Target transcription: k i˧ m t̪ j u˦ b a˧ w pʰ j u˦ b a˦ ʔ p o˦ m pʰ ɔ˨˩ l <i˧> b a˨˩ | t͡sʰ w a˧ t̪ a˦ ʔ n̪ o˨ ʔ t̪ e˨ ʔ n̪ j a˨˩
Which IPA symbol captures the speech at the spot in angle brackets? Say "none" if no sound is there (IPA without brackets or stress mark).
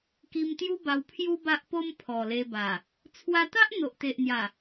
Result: e˧